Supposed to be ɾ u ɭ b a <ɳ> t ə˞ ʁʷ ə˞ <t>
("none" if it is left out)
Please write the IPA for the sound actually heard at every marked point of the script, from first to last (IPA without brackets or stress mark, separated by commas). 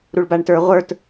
ɳ, t